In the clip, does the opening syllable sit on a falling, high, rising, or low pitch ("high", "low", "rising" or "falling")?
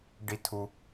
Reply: low